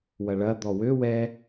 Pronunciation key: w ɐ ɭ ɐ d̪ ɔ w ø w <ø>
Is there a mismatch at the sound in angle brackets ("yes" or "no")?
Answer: yes